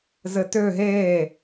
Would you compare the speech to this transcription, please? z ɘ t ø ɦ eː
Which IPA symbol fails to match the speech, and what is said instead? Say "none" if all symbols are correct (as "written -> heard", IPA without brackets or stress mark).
none